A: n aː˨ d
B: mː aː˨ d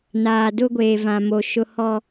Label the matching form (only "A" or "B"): A